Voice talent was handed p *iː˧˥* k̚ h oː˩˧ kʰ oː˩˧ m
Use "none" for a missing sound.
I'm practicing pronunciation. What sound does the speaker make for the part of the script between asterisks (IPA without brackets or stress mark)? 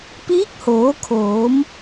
iː˧˥